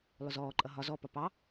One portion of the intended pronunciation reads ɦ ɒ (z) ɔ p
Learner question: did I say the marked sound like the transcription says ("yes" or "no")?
yes